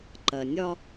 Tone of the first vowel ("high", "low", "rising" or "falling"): low